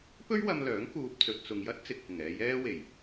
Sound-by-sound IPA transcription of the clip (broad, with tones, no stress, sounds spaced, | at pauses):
p ɵ˥ ɥ w ɐ˧ m l œː˨˥ ŋ k uː˨ p̚ t͡s ɵ˨ t̚ t͡s ʊ˨ ŋ j ɐ˥ t̚ t͡s ɪ˨ k̚ h ɪ˨˩ ŋ ɛː˧ j ɛː˧ w e˨˩ j